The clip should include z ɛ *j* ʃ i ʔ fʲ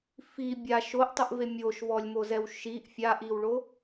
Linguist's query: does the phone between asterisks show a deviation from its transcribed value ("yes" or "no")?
yes